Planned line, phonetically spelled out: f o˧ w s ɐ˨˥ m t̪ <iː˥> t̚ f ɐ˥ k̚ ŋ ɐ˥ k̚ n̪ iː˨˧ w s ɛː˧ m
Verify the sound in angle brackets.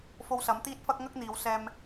correct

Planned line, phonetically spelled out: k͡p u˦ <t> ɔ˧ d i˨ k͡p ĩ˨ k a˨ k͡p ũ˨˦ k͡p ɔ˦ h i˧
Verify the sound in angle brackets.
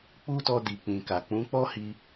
correct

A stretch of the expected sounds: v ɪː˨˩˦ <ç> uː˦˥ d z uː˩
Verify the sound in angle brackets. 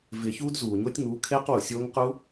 correct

